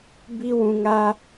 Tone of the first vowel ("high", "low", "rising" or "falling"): high